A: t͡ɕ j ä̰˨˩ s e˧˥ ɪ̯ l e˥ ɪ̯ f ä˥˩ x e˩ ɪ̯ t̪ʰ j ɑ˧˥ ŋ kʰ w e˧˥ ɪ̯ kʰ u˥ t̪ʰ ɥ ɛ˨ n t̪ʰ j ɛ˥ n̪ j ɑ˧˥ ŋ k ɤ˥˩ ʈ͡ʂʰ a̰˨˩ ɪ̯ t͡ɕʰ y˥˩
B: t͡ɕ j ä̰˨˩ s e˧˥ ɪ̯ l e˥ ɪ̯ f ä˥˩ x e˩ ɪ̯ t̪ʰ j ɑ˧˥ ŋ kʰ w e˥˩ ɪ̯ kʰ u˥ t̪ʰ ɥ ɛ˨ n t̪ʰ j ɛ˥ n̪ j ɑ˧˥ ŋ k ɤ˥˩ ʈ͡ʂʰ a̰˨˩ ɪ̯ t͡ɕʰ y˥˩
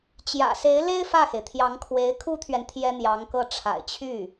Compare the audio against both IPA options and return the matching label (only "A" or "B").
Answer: A